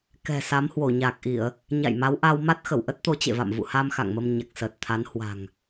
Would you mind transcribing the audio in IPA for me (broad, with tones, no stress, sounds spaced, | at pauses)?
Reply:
k ɛ̤˨˩ s a˨˦ m h w o˧˩ ɲ aː˨˩ k̚ ʔ i˧˩˨ ə̯ | ɲ a̰˧˨ j m a˨˦ w ʔ a˧ w m a˦˥ t̚ x ə˧˩ w ʔ ə˦˥ t̚ t̪ o˨˦ t͡ɕ ḛ˧˨ v a̰˧˨ m v ṵ˧˨ h a˧ m x a̰˧˨ ŋ m ə˧ m ɲ a˨˩ k̚ s əː˨˩ t̚ t̪ʰ a˨˦ n h w a̤˨˩ ŋ